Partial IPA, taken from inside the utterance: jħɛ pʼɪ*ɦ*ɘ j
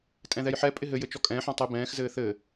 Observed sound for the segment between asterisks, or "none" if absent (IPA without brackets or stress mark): ɦ